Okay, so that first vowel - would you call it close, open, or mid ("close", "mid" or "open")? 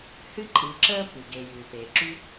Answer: close